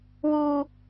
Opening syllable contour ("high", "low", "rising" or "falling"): high